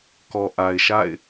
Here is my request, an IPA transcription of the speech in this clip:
k ɔ˨ ʔ a˨ ɪ̯ ʃ a̰˦˨ ɪ̯

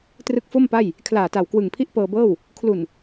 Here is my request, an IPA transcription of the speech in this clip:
t r ɯ˦˥ k̚ f o˥˩ m p a˥˩ j | kʰ l aː˨˩ t a˨˩ w k w ɯ˨˩ ŋ pʰ i˥˩ ʔ p ɤː˧ b ɤː˥˩ w | kʰ l u˨˩ n

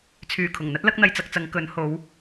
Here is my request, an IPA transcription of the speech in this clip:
t͡sʰ yː˨˩ kʰ ʊ˨˩ ŋ n̪ ɐ˥ t̚ l ɐ˥ k̚ n̪ ɐ˧ j t͡s ɐ˧ k̚ t͡s ɐ˨˧ ŋ k ɵ˨˧ n h o˨˧ w

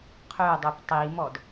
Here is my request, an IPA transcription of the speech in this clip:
qʰ ø dˤ o p tˤ i m ɔ d

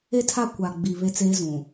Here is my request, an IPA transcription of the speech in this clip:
e˦ tʰ a˦˨ kʷ a˨ ɡ͡b i˨ β e˦ t͡s eː˦ z ũ˨

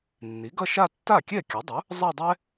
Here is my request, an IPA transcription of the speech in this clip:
nː i˩˥ ɡ ʌ˥˧ ʃ a˥˧ tː a˥˩ kʲ ɛ˥˩ kʲ ʌ˩˥ dˤ u˩˥ | zˤ a˥˧ dˤ ɛ˥

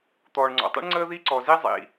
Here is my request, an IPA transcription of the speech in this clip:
t̪ ɔː˩ ɳ ŋ͡ǀ ɔ̰˩ tˤ ḭ˥ ɳ ŋ͡ǀ əː˥ ð i˥ ǀ ɔ˩ z i˥ zˤ ḭ˩

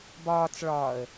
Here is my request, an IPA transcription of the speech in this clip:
b ɒː t͡s ɭ ɒː ə̯

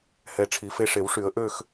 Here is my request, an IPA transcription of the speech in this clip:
h ɛ˧˩ ʈ͡ʂʰ i˨˩˦ f e˧ ʂ e˨˩˦ w ʂ y˨˩˦ ə̯ ʔ ø˥˧ x

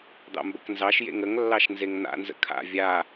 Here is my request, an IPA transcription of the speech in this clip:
d̪ ɑ̰ m b ə k n z ɑ ʃ j ḛ ŋ ə ŋ lː ɑ ʃ n z e ŋ n̪ a̰ n z ə̰ kʰ a̰ vʲ a

